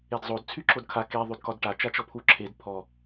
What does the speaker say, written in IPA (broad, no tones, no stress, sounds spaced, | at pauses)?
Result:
e d zˤ o d t͡sʰ y ǁ o d kʰ a k e ðˤ y d k ɒ d ʈ a t͡ʃ a t͡ʃ ɔ pʰ u ǁʰ e d pʰ ɔ